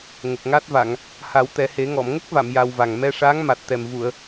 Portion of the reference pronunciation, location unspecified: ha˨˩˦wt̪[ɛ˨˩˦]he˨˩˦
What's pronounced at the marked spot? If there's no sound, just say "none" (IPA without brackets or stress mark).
ɛ˨˩˦